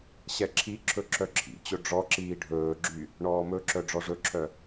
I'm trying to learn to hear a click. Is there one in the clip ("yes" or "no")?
yes